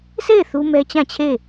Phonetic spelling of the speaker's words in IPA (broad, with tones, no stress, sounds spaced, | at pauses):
s e˦˨ ɪ̯ θ u˦ m ɛ˦ t͡ɕ ã˦˨ t͡ɕʰ e˦˨